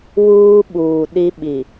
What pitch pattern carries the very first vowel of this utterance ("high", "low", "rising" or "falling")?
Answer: high